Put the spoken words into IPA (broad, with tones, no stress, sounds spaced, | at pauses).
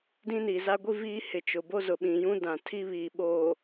d ĩ˦ n i˨ z a˦ ɡʷ i˦ v iː˦ h ɪ˨ t͡ʃ ʊ˨ b o˦ z ʊ˨ ɓ ĩ˨ j ũ˦ d ã˨ tʰ i˦ β iː˨ ɓ oː˨